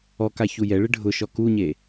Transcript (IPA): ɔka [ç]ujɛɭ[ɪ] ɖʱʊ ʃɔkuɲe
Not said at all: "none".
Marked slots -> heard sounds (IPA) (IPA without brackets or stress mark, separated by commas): ç, ɪ